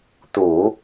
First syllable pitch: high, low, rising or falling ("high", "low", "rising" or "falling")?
low